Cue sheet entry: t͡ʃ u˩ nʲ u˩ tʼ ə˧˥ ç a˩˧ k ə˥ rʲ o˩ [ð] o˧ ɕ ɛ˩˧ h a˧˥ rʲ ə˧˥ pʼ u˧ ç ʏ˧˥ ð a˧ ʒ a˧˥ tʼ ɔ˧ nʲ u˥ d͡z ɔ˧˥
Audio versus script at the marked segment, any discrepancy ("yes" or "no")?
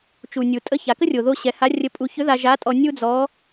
no